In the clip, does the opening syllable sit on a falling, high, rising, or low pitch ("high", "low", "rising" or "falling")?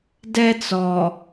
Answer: high